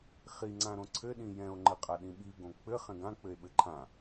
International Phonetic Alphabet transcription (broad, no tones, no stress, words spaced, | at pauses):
χiŋ͡ǀãɾõ ǀʰɘɗĩ jɛ̃o̯ŋ͡ǃɘqʼa ɗĩɓiɡõ k͡pɘ χɛ̃ɡã k͡pɘe̯ɓɘǃʰã